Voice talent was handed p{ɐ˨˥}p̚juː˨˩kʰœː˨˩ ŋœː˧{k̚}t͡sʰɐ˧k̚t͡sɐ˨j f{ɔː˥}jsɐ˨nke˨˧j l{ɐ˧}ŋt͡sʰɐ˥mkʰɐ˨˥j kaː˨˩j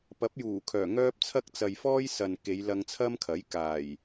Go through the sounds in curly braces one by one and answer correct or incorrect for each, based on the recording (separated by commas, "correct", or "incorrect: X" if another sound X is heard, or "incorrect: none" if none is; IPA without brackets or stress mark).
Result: correct, incorrect: p̚, correct, correct